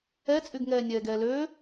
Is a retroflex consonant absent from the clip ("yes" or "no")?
yes